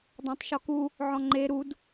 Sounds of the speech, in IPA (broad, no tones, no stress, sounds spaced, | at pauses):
dˤ ã tˤ ʃ ɔ k u | ʕ ɔ̃ ŋ͡ǃ e ɾ u d